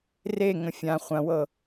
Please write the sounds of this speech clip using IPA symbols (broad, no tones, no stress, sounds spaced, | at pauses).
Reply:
r e ŋ ə̃ fʲ ã χʷ ɐ̃ w ɤ